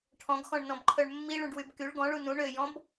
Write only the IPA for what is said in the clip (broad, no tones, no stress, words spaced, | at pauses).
ʈʰɔ̃ɡxɔ̃ɳnɔ̃bǃʰœɳ mːiɭũɖwyb kyɭ ɡɔ̃ɭu nũ ɳøjɔ̃b